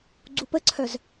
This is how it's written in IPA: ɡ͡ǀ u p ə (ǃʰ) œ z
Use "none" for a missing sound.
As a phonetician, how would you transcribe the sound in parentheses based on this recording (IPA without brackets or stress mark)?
ǀʰ